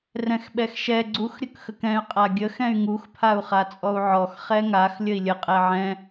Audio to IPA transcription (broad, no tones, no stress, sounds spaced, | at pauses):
r ɛ̃ x ɓ ɛ x ʃ ɛ ɡ͡ǀ u x ɾʲ ə k x ə k ɛ̃ y̯ qʼ a ɡʲ ə x ɛ̃ y̯ ŋ u x pʰ a u̯ χ a t͡sʼ ɔ u̯ ʕ ɔ x χ ɛ ŋ a x lʲ ə i̯ lʲ ə qʼ ɛ ʕ ɛ̃